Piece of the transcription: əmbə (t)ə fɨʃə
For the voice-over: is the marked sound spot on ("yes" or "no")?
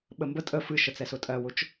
no